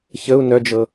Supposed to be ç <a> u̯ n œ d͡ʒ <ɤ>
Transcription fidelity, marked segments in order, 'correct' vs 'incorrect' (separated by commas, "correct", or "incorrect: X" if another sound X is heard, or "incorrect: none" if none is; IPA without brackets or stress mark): incorrect: ə, correct